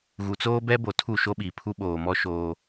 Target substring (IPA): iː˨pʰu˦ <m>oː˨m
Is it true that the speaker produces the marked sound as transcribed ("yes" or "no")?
no